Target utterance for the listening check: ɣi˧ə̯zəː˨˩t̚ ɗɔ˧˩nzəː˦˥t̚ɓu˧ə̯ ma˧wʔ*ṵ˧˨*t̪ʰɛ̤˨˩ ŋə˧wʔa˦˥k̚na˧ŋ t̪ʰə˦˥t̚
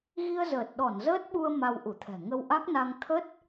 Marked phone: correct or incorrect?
incorrect